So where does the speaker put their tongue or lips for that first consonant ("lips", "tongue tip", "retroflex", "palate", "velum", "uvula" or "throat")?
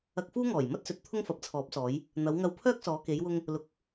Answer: velum